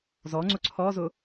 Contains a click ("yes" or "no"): yes